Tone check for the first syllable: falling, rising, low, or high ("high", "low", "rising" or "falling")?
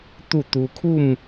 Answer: falling